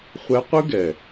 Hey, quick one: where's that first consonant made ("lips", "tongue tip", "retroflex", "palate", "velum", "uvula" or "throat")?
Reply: uvula